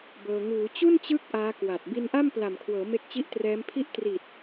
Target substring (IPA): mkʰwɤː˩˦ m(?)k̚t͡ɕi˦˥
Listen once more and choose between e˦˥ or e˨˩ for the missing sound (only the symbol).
e˦˥